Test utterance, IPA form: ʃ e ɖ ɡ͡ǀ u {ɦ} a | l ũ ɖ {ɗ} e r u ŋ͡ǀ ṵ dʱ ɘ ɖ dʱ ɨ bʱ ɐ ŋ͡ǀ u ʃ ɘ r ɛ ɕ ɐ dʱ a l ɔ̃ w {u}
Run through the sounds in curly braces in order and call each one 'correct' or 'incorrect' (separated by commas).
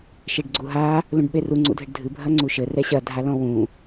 correct, incorrect, incorrect